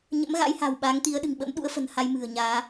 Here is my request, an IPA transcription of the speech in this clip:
ɲ ə̰˧˥ m ɣ a̰˧˥ j h a̤ː˨˩ w ɓ aː˨˦ ŋ t̪ i˨˦ ə̯ ɗ ɨ̤˨˩ ŋ ɓ ə̰˧˥ m ɗ ṵ˧˥ ə̯ f ə̤˨˩ n h a˧ j m ɨ̤˨˩ ə̯ ɲ aː˨˦

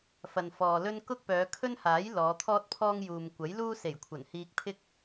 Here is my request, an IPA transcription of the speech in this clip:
f ɐ˨ n f ɔː˨ l ɵ˥ n k ʊ˥ k̚ p œː˨˧ kʰ ɵ˥ n h aː˨˥ j l ɔː˨˧ t̪ʰ ɔː˥ t̚ pʰ ɔː˥ ŋ j uː˨ m kʷ ɐ˨˥ j l uː˥ s e˨˩ j kʷʰ ɐ˨˩ n h iː˧ k̚ pʰ ɪ˥ k̚

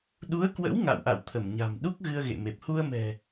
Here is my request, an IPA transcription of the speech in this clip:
ɗ u˨˦ ə̯ k w ə̰˧˥ w ŋ a̰˧˨ w ʔ a̰˧˨ w t̪ʰ ə˧˩ m ɲ a̤˨˩ m ɗ u˦˥ k̚ ɣ ɨ˧ ə̯ ɣ ḛ˧˨ m e˨˩ p̚ h u˧ ə̯ m ɛ̤˨˩

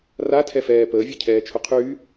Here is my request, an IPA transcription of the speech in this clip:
r a tʰ ɛ f ɛː p əː vʲ e cʰ ɛː t͡ʃʰ ʊ qʰ yː

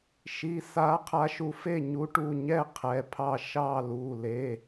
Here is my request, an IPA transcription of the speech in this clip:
ʃ i˩˧˩ s a˨˥ qʰ a˨˥ ʃ u˨˥ f e˥˨ ɲ u˨˥ ʈ u˩˧˩ ɲ ɛ˥˨ qʰ ɛ˩˧˩ pʰ ɑ˥˨ ʃ ɑ˥˨ l u˩˧˩ l e˩˧˩

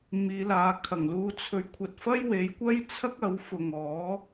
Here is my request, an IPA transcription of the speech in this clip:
m iː˨˧ l aː˨˧ kʰ ɐ˨˩ ŋ l uː˧ t͡sʰ ɵ˨˧ ɥ kʷʰ ɐ˨ t̚ f ɐ˥ j w e˨˧ j kʷ ɐ˥ j t͡sʰ ɐ˥ k̚ ɐ˨˧ w f ʊ˨ ŋ ɔː˨˥

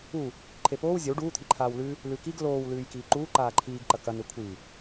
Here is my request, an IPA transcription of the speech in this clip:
u | ǃʰ e p oː w zʲ ɐ w ɖ uː t̪ʰ i ǃʰ aː w l ʉ | l ʉ k i ɡ l oː w l ʉː j k iː ǃ uː ǃ aː ǃʰ iː ɡ ǃ ɐ k ɐ n e kʷʰ i

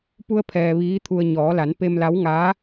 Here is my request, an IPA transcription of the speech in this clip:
p u˧ ə̯ pʰ ɛː˩ ʋ iː˧˥ t̪ʰ u˧ ə̯ ɲ ɔː˩˧ l a˩˧ n p e˧ m l a˧˥ w ŋ aː˧˥

